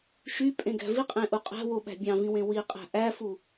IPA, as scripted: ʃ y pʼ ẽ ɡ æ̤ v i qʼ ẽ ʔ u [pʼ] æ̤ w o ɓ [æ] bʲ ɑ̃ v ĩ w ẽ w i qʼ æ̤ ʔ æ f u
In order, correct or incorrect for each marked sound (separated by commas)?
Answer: incorrect, incorrect